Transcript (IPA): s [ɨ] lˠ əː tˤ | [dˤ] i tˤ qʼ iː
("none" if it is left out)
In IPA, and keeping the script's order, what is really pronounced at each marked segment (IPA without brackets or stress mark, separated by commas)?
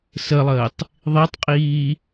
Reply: ə, ðˤ